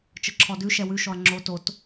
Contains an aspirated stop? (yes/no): yes